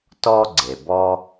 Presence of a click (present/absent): present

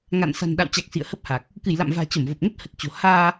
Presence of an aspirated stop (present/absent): absent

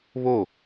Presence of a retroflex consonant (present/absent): absent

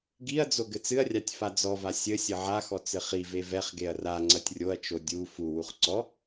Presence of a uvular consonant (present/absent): present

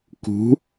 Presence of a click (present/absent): absent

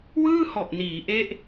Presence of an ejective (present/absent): absent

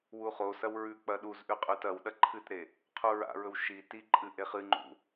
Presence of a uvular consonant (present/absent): present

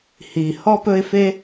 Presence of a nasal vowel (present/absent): absent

